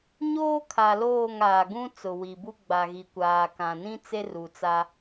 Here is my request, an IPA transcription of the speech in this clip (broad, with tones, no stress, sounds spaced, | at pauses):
ɲ oː˦ kʰ a˨ l oː˦˨ ŋ aː˨ ɡ ũ˦ t͡s ʊ˨ w i˨ b u˦ ɡ͡b a˨ ɣ i˨ kʷ aː˨ k ã˨ n ĩ˦ t͡s e˦ r u˨ t͡s a˦